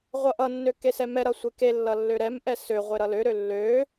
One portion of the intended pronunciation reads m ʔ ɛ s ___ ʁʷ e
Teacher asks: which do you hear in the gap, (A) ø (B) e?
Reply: A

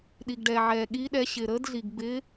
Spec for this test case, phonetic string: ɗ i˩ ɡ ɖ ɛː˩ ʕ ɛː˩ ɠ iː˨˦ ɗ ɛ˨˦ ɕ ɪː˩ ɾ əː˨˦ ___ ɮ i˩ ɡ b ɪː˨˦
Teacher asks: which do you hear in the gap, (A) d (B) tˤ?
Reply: A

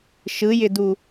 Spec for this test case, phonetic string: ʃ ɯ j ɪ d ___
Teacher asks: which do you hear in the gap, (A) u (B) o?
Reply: A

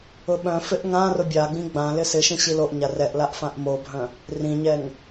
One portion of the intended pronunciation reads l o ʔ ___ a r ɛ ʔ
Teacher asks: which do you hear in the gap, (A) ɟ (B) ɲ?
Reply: B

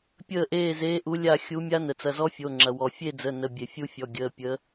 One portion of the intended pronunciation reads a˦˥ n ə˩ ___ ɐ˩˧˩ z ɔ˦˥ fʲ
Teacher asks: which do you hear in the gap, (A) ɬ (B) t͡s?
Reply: B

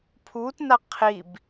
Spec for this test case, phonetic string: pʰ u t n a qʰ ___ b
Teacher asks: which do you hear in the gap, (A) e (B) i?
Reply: B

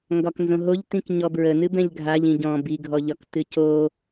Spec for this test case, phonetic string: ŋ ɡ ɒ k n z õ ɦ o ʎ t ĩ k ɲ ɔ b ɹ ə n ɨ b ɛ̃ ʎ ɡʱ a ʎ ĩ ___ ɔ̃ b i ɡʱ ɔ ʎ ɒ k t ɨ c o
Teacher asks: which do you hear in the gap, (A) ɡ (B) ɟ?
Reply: B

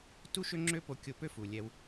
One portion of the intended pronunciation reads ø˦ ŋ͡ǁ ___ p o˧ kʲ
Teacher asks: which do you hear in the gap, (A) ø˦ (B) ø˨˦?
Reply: A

